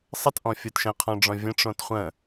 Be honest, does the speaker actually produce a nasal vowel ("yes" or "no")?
yes